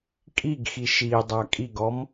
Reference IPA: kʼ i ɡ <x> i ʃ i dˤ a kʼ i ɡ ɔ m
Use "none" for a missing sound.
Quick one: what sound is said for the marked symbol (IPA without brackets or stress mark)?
x